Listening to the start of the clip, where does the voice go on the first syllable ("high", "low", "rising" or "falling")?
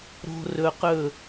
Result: low